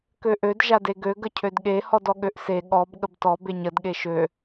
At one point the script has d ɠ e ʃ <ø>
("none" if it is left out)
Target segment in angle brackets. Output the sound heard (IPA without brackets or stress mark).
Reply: ø